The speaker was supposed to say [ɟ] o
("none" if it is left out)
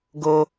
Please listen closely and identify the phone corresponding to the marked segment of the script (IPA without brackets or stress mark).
ɡ